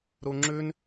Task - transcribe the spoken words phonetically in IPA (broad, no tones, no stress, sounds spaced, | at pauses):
ɾ u ŋ͡ǁ ʉ n